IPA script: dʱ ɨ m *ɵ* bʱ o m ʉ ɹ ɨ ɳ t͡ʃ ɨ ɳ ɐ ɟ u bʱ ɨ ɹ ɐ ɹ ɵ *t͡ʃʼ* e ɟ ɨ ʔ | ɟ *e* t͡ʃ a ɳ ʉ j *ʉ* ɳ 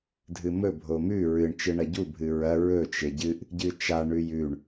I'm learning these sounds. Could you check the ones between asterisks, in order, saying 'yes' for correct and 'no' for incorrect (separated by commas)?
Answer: yes, no, no, yes